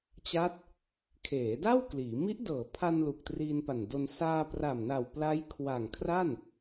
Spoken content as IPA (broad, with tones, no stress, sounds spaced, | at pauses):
t͡ɕ a˦˥ t̚ | kʰ eː˩˦ d a˥˩ w k l iː˩˦ m i˦˥ ʔ d ɤː˩˦ pʰ a˧ n l u˨˩ k̚ t r i˧ n p a˨˩ n d o˧ n s aː˧ p r a˨˩ m n a˨˩ w p l a˦˥ j kʰ w a˨˩ ŋ kʰ r a˥˩ n